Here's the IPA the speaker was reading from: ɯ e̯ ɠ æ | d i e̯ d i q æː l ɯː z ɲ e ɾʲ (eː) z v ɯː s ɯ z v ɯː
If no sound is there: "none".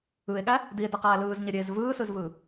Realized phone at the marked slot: eː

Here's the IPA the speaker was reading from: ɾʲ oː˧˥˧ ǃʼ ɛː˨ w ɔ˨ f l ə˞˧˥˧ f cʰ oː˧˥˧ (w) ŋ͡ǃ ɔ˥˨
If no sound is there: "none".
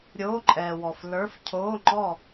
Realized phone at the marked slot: none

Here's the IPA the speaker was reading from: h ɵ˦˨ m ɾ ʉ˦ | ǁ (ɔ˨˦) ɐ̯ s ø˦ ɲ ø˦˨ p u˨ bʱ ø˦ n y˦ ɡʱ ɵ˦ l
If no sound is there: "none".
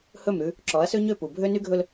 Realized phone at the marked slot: ɔ˨˦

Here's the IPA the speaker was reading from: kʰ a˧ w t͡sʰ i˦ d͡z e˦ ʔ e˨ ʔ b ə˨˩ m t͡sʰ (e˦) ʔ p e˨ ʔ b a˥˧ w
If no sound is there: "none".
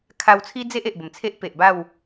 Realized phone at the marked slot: e˦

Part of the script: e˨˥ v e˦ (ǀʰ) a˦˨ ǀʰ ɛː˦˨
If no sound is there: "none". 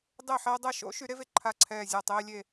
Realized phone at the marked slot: ǃʰ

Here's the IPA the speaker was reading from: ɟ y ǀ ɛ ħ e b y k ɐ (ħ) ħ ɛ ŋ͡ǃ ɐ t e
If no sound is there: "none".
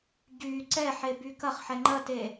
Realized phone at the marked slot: χ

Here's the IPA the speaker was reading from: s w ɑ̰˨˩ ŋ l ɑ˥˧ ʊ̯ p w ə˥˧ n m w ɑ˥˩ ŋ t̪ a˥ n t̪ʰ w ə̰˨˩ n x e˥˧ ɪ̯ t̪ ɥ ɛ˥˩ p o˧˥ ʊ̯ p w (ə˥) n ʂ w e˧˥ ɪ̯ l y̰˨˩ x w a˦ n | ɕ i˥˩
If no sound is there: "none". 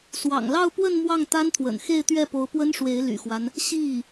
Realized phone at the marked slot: ə˥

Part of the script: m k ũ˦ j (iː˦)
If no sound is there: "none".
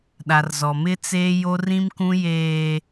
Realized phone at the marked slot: eː˦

